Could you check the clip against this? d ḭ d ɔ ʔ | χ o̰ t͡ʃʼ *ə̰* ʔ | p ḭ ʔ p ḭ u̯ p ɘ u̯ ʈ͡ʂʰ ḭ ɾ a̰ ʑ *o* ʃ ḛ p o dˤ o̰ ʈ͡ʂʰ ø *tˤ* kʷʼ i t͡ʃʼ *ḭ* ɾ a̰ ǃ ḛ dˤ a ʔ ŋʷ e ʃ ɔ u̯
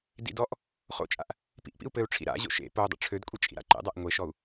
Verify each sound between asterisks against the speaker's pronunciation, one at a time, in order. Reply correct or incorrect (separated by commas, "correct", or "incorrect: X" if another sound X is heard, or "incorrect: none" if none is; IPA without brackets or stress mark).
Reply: incorrect: a̰, incorrect: o̰, incorrect: d, correct